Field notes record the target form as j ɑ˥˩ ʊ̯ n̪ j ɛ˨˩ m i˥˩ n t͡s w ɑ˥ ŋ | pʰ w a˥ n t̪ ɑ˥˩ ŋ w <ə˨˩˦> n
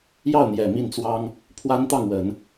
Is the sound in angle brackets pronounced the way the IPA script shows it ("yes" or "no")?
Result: yes